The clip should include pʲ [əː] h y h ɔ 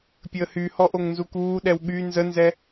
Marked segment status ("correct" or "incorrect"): correct